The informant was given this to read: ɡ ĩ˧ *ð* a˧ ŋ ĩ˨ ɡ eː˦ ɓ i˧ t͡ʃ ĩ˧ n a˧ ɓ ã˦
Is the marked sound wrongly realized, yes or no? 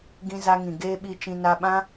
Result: yes